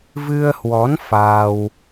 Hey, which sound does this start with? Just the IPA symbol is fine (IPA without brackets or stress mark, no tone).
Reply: v